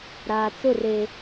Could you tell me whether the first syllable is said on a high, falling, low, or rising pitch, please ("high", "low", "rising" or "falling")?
low